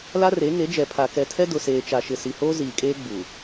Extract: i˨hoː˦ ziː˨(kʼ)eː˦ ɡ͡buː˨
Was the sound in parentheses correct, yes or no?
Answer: yes